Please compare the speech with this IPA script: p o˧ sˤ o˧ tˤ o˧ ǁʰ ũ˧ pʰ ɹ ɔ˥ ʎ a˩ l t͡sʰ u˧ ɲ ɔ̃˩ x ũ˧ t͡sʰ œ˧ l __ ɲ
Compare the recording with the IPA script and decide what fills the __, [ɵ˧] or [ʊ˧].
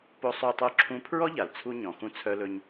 ɵ˧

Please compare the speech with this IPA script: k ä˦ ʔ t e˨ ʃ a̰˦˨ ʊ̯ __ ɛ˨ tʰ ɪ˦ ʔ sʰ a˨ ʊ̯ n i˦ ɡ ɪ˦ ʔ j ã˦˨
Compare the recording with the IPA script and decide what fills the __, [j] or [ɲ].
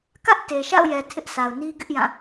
j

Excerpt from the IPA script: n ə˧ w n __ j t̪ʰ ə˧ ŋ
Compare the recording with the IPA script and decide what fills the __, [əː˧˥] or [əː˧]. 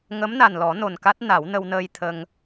əː˧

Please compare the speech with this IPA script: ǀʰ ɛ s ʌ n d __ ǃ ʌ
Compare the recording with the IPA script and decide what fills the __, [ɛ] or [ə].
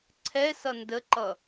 ə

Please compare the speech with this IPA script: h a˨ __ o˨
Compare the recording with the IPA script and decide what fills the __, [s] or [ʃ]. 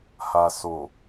s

